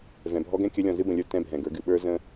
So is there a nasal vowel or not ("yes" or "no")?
yes